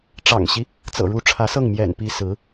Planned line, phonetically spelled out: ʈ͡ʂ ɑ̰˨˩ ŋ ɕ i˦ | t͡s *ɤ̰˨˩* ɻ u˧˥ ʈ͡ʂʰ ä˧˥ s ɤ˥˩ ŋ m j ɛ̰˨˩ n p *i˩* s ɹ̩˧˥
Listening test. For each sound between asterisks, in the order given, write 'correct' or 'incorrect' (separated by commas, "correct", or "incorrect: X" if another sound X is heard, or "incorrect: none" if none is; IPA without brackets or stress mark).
correct, incorrect: i˧˥